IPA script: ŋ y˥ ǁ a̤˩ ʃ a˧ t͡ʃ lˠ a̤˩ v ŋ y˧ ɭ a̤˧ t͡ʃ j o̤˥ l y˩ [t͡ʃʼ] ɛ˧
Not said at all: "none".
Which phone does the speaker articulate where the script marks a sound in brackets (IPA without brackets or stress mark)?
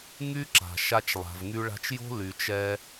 t͡ʃ